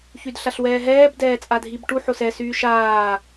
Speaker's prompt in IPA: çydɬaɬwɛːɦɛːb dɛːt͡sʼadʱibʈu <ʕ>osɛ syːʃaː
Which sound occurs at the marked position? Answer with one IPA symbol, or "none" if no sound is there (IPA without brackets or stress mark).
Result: ħ